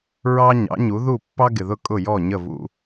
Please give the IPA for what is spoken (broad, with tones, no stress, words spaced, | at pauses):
ɹɑ˥ɲɑ̰˩˥ɲu˩˥ ðu˥˩ pːɑ˥ɡɪ˩ðʊ˥˩ kʼʊ˥˩jɔ˥˩ ɲə˥˩vṵ˧